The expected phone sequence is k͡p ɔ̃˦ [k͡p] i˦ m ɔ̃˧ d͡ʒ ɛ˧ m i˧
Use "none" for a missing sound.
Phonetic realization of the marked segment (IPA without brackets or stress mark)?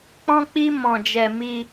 k͡p